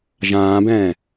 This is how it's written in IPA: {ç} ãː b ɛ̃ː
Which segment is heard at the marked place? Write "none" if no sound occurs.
ʒ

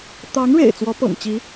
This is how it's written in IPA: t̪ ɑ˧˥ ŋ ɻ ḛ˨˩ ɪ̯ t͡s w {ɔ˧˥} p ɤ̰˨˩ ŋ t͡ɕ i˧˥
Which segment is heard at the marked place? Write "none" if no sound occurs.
ɔ˧˥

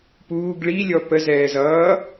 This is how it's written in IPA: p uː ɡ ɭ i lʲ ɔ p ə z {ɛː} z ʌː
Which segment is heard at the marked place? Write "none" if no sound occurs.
ɛː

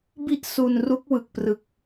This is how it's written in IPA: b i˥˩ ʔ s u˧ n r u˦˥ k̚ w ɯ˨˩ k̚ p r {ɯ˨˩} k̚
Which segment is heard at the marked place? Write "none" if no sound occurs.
ɯ˨˩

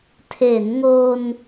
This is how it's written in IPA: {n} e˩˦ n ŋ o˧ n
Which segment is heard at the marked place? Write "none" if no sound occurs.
tʰ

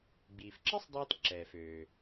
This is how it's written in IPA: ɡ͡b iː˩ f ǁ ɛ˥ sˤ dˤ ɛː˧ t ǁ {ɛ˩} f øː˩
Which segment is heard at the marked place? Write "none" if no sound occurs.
ɛː˩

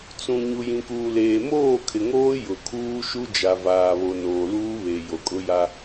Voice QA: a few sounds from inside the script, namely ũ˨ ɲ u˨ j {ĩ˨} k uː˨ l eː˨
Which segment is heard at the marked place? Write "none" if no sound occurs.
ĩ˨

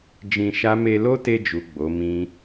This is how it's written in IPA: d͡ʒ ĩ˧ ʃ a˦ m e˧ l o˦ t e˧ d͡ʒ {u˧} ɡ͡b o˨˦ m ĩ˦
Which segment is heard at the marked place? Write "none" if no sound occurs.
u˨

